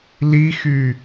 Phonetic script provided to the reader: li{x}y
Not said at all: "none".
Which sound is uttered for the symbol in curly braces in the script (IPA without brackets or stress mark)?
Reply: x